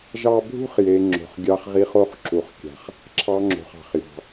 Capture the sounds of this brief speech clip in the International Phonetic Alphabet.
ʒ ɑ˦ bʱ ṳ˥ χ j e˨ ŋ͡ǁ o̤˩ χ ɡʲ ɑ˨ χ ʁ i˨ χ o˦ χ ǁ u˩ χ kʲ a̤˩ χ | ǁʰ ɑ˨ ŋ͡ǁ o̤˩ χ ɑ̤˩ χ j ɑ̤˩

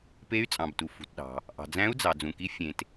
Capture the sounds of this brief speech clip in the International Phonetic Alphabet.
p e˧˥ y̯ t͡sʼ ɑ̃˩ b t u˩ f ṳ˩ t ɗ ɑ̤˩ | ʔ ɑ̤˩ d͡z æ̃˧˥ u̯ d͡z ɑ˩ d͡z ũ˩ k i˧˥ fʲ ẽ˩ t

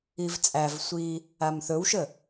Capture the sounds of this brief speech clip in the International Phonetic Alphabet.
i v t͡sʼ æ v sʷ iː | a m θ ɵ w ʃ ə

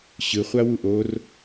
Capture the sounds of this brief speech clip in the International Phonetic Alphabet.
ɕ ɯ χʷ a w u ʔ o r

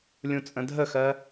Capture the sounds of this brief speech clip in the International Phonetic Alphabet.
lʲ ũ t͡sʼ ə̃ dʱ ə x ɜ

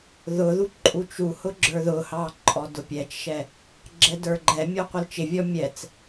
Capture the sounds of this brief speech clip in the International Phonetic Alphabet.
ð ʊ ð u ǃʼ u t͡ʃ u h ʊ ɡ͡ǁ ə˞ ð ʊ h ɑ ǃʼ ɔ d ʊ pʲ ɛ t͡ʃ ʃ ɛ | ɡ͡ǁ ɛ d ə˞ ɡ͡ǃ ɛ mʲ ɔ qʷ ə l t͡ʃ ɪ vʲ ɔ mʲ ɛ t͡s

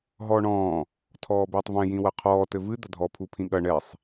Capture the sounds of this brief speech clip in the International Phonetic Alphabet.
ɦ ɔː ɳ ɔ̃ː | tʰ ɔː b eː tˤ v ɛ̃ j ĩ w ɐ qʰ ɔː t ɘ v ɨ d̪ ɐ dʱ ɔ pʰ u pʰ ĩ ɠ ɐ ɳ ɛ sˤ

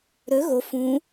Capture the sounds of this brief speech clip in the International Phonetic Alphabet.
ɾ ɵ ɣ o f ũ

